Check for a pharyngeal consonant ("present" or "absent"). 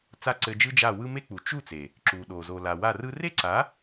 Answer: absent